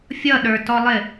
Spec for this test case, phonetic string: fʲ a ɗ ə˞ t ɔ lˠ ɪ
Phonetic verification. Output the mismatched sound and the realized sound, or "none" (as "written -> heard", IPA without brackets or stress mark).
a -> ʌ